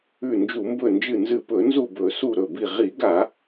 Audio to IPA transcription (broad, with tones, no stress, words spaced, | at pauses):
ʉ˧˩nd͡ʒu˧˩˧mbɵ˧˩nd͡ʒɨ˧˩ nzɨ˧˩pɵ˧˩˧nzu˧˩ bɵ˧˩˧su˧˩ ɾɵ˧˩bi˧˩ ʁi˧˩˧ɡa˧˩˧